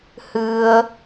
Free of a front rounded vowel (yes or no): yes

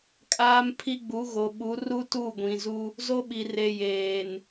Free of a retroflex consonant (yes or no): yes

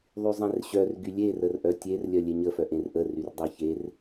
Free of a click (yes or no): yes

